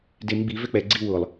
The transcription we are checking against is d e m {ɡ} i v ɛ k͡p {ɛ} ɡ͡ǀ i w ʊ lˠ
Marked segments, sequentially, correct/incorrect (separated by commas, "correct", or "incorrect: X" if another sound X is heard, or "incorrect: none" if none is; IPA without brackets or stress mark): incorrect: ɡ͡b, correct